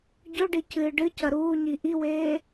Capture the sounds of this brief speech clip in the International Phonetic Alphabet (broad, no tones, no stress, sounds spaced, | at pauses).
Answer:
ɟ ɵ ɖ i c ɨː ɖ ɨ c ɐ ɾ uː ɲ i ʔ i w eː